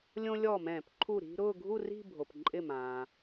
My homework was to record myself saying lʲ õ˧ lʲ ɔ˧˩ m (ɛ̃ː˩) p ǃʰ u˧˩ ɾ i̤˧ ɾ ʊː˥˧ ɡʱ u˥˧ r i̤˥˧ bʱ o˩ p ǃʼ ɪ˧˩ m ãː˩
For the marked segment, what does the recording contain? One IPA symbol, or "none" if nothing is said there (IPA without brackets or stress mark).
ɛ̃ː˧˩˧